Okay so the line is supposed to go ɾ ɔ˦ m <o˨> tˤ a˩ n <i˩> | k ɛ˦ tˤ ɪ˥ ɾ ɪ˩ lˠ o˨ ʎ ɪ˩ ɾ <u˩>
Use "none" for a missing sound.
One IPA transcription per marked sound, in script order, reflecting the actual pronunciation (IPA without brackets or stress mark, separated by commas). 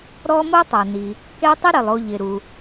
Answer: o˥, i˩, u˩